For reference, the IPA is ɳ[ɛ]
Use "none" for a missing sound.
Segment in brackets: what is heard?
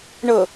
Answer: ə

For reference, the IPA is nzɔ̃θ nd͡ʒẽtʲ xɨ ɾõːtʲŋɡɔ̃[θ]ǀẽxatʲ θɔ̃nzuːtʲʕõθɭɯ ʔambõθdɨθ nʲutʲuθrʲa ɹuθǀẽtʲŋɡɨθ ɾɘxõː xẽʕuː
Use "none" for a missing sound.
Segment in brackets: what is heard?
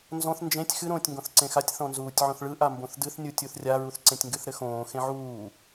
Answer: θ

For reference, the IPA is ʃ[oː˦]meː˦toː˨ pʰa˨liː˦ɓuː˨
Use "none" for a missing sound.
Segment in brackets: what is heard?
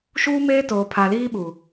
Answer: uː˦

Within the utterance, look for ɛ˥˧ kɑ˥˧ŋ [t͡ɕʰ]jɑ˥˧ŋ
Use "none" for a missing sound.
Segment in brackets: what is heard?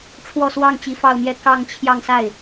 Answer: t͡ɕʰ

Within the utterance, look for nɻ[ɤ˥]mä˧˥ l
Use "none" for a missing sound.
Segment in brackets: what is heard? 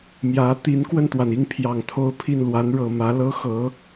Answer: ɤ˨˩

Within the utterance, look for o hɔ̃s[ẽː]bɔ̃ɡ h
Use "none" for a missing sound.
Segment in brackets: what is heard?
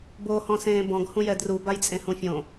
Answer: ẽː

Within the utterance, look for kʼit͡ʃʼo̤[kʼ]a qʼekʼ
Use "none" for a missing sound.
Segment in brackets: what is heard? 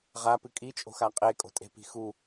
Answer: x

